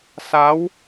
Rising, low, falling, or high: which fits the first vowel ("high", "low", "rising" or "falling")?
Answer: rising